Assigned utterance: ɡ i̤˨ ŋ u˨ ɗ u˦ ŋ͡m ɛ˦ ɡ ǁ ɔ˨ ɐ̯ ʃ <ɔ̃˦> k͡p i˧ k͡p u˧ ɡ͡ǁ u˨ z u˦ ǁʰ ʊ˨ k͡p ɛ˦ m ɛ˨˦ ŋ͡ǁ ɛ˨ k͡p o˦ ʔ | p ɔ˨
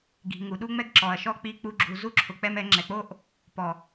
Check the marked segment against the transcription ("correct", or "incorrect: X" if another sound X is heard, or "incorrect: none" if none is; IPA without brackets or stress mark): incorrect: ɔ˦